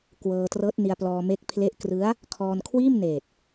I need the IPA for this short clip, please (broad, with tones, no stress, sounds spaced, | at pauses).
k w ɤː˧ t r ɤː˦˥ t̚ n i˧ a̯ p l ɔː˧ m e˦˥ k̚ pʰ l e˦˥ ʔ k r ɯ˦˥ a̯ | kʰ ɔː˧ n kʰ w iː˥˩ m n eː˨˩ t̚